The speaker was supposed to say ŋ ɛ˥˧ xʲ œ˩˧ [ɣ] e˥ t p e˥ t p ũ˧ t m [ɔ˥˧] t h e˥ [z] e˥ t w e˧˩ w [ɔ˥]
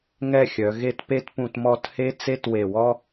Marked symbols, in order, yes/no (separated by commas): yes, yes, no, yes